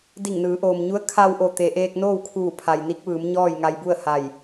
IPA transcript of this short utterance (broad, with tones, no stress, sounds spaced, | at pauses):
d i˧˩ ŋ n ɯː˩˧ ʔ oː˩ m ɲ u˧˥ ə̯ kʰ a˧ w ʔ o˧˩ t̪ e˩ ʔ eː˧ k̚ n oː˥˨ w kʰ uː˧˩ pʰ a˩ j n i˧˥ k̚ ʋ ɯː˩˧ m ɲ ɔː˥˨ j ŋ a˧ j b u˥˨ ə̯ h a˧˩ j